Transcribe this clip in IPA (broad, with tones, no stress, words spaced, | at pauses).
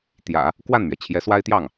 t̪jä̰˨˩˦ | kwa˥˩nmɥɛ˩t͡ɕʰjɛ˧˥ swa˥ɪ̯t̪jɑ˥˩ŋ